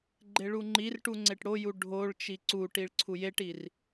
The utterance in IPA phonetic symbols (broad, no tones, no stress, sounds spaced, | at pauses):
ɡ͡ǃ e ɭ u ŋ͡ǃ i r ʈ u ŋ͡ǀ e ʈ ɽ o j u ɖʱ o ɭ t͡ʃ i ǀ u ʈ i ɭ ǀʰ u j e ʈ i r